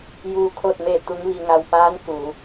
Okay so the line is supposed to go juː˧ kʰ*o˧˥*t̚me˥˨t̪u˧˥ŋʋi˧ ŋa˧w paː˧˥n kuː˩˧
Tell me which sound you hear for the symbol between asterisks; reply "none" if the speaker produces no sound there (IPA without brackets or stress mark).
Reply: o˥˨